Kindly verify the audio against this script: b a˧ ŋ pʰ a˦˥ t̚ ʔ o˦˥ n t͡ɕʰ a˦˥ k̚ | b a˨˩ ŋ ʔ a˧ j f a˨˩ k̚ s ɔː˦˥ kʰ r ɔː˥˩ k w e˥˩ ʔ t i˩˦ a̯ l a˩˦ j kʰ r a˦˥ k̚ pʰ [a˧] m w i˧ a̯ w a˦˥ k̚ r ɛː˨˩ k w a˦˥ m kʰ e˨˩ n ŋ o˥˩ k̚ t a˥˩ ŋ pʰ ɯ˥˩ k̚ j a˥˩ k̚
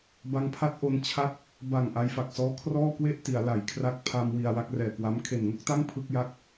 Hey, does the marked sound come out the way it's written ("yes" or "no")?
yes